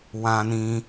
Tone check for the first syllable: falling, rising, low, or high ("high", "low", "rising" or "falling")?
low